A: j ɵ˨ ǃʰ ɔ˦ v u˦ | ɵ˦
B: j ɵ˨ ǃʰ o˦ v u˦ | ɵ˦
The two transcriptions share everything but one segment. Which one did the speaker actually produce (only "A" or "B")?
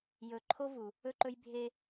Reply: B